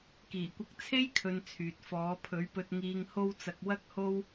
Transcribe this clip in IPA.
kiː˨˩kʷɐ˧k̚ t͡sʰe˥jkʰɵ˨n t͡sʰyː˨t̚fɔː˨˧ pʰɵ˨˥ɥpɵ˧t̚ ŋiː˨ŋho˧wt͡sɐ˨k̚ wɐ˥k̚ho˥w

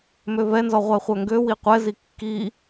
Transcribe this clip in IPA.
møvɛnzɔ ʁʷɛχʷœŋɡøwi qʷɛzi kːi

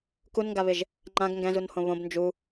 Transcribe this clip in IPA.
kunŋɡaβɪʒ | ŋ͡ǃãɡ ŋɡɛ̃zunhõ βõb nd͡ʒu

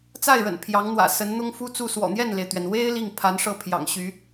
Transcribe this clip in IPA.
t͡sa˥˩ɪ̯ɻə̰˨˩n pʰjɑ˧˥ŋn̪wä̰˨˩sə˧˥nn̪ʊ˥ŋ fu˥t͡su˥˩ swɔ̰˨˩n̪jɛ˥˩nle˩ɪ̯t̪ɥɛ˩n we˥ɪ̯ li˥˩ŋpʰa˧˥nʂɤ˥˩ pʰjɑ̰˨˩ŋɕy˧˥

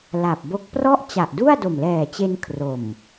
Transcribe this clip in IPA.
la˨˩p̚bo˦˥k̚ prɔ˥˩ʔ t͡ɕa˨˩ʔdu˥˩a̯ do˨˩mlɛː˨˩t͡ɕe˧n kʰro˨˩m

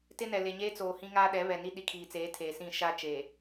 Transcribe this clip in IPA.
tɪ˦nɛ˨ le˨ɲeː˦t͡soː˨ hĩ˦ŋaː˦ɗɛ˨˦ βɛ˨ni˦ ɗi˨kʰiː˨t͡seː˨˦ tʰeː˨sĩ˦˨ ʃa˦t͡ʃe˨

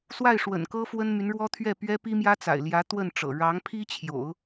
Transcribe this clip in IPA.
swa˥˩ɪ̯ʂwə̰˨˩nkɤ˥ fwə˥nmy˧˥nɻwɔ˥ t̪ʰɥɛ˥˩pɥɛ˥pi˥ mjä˥t͡sa̰˨˩ɪ̯ ljä˧˥ t̪wə˥˩nʈ͡ʂɤ̰˨˩ ɻɑ˧˥ŋpʰi˥t͡ɕʰjo̰˨˩˦ʊ̯

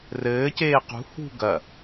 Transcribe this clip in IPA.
rɘːceː qṳ hṳ ɡɐ

